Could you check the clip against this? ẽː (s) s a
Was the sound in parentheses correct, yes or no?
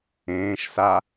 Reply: no